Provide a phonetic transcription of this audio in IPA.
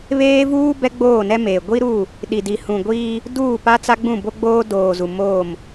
β eː˦ v uː˦ b ɛ˦ ɡ͡b oː˦˨ n ɛ˦ m eː˨ ɡʷ i˦ ɾ u˦˨ | ɗ i˨ d i˨ h ũ˨ ɡʷ iː˦ | d uː˦˨ p a˦ t͡s a˦ ɡ͡b ũ˦˨ b o˦ ɡ͡b oː˦ d oː˨ z u˨ m oː˦˨ m

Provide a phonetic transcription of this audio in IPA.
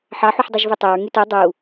ħ ɑ ħ u ħ dˤ ø ʒ v ø tˤ ø ɹ ŋ y t o dˤ u

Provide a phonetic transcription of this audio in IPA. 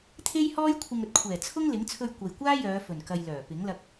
t̪ʰ e˥ j h ɔː˥ j kʷʰ ɪ˧ ŋ ɵ˧ t̚ kʷʰ ɛː˨˩ t͡sʰ ʊ˥ ŋ l ɪ˨˥ ŋ t͡sʰ ɵ˧ ɥ kʷ ɐ˨ j kʷ aː˥ j œː˨˧ f ɵ˨˩ n k ɐ˨ j l œː˨˩ p ɪ˨˥ ŋ l ɐ˧ k̚

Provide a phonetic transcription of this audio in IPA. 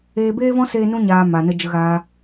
eː˧ b eː˦ v ɔ̃˦ s eː˦ n ũ˦ ɲ aː˨ m a˨ n ə˧ d͡ʒ ə˧ ɣ aː˧

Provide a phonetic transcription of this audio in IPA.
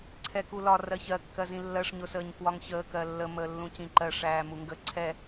ǀʰ ɛ k u l ɒ r ɜ ç ɜ kː ɜ z ĩ lː ɜ ʂ ɲ ʊ s əː ɲ k w ɒ ŋ ç əː k ɜ lː ə m əː lː ũ c ĩ ǃ ɜ ʂ æː m u ŋ ɡ ə ǀʰ ɛ

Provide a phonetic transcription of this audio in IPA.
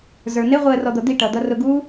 z ə˞ n ɪ ʁʷ i ə̯ r ɔ d̪ ʌ d̪ i ʈ ʌ d̪ ʌ r ʊ ɡ u

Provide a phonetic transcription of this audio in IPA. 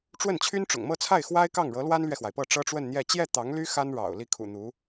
ʈ͡ʂ w ə˥˩ n t͡ɕʰ y˥ n ʈ͡ʂ ʊ̰˨˩ ŋ m ɤ˥˧ t͡sʰ a˥˩ ɪ̯ x w a˥ ɪ̯ k ɑ˥˩ ŋ ɻ ɤ˧˥ l w a˥ n l ɥ ɛ˨ x w a˩ ɪ̯ p ɤ˥˩ ʈ͡ʂ ɤ˥ ʈ͡ʂ w ə˥˧ n n̪ j ɛ˥˧ t͡ɕ j ɛ˥˩ t̪ ɑ˧˥ ŋ l y˥ x a˥ n ɻ ɑ̰˨˩ ʊ̯ l i˥˩ kʰ ṵ˨˩ n̪ u˧˥

